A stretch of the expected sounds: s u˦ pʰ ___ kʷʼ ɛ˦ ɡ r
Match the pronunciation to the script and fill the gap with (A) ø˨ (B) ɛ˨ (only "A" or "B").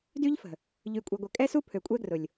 A